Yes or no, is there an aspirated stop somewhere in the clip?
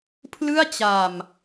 yes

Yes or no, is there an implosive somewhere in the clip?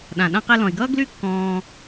yes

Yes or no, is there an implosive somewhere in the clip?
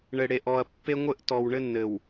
no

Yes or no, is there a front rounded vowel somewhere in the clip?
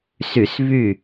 yes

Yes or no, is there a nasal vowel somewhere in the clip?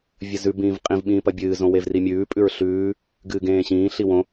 yes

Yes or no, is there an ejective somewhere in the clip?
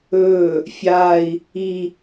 no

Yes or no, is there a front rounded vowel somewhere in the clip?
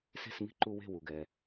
no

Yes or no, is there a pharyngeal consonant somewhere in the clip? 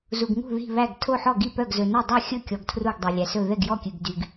yes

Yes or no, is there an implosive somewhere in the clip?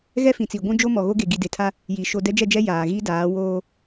no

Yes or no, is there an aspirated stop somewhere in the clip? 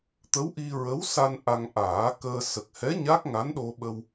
no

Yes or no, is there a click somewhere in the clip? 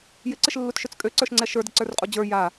yes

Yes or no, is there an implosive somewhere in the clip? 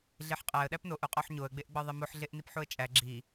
yes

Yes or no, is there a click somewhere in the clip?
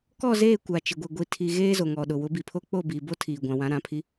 no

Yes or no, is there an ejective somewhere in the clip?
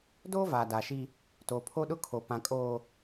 yes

